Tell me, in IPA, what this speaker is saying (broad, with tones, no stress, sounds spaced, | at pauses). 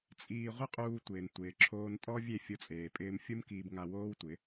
t͡sʼ iː˧ ʁʷ ɪ˦ qʼ uː˧ tʷ ɪː˨ n tʷ ɪː˨ ǁʰ oː˧ n tʼ ɔ˦ vʲ e˦˨ fʲ ʊ˧ t͡sʼ eː˨ pʼ ɪː˧ m fʲ u˦ m k iː˧ b ŋ a˧ w oː˦ w tʷ ɪ˨˦